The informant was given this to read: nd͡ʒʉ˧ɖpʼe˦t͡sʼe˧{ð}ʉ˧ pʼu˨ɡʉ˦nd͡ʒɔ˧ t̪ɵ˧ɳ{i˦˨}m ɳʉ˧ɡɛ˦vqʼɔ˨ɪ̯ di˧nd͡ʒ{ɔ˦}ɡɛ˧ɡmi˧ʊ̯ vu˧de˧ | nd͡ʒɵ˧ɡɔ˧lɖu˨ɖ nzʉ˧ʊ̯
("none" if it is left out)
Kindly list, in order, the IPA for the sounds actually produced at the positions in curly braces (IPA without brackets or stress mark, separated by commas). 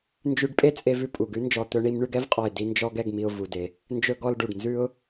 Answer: v, i˧, ɔ˦